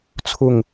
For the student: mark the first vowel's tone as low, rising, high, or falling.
falling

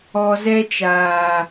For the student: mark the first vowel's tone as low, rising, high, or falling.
low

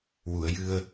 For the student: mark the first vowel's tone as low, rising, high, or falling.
low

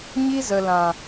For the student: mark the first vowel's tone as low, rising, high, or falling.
high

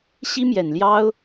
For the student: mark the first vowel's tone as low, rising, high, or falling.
high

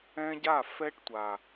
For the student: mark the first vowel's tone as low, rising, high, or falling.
high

